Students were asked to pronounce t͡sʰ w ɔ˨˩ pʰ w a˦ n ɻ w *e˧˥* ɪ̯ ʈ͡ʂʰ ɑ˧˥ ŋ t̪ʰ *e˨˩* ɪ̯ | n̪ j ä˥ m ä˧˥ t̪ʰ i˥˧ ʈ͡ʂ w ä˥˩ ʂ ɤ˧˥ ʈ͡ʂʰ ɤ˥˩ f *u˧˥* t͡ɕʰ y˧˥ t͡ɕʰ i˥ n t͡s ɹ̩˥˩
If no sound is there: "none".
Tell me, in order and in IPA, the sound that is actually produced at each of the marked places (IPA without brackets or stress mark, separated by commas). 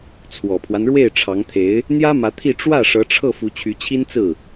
e˥˩, e˧˥, u˧˥